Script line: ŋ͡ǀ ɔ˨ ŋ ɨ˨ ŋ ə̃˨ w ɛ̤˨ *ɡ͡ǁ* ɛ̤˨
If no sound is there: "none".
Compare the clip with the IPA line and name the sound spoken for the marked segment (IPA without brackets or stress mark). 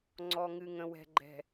ɡ͡ǃ